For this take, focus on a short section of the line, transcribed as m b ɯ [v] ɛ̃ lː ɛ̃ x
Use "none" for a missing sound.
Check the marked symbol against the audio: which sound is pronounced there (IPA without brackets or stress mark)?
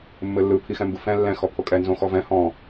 f